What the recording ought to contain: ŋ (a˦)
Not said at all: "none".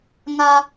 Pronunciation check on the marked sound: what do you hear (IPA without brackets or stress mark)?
a˦